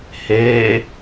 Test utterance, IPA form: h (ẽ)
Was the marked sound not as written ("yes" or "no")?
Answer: yes